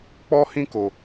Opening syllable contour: high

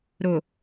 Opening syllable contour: low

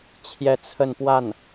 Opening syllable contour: falling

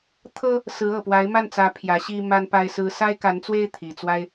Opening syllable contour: high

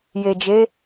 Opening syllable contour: low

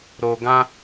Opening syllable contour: high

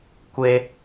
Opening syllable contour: high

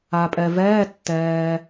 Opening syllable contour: low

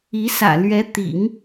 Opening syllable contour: rising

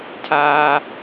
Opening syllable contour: high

